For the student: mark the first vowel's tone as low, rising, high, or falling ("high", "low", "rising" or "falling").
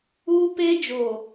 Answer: high